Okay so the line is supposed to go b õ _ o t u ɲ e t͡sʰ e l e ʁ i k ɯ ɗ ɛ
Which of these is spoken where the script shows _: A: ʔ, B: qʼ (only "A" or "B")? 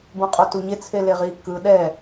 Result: B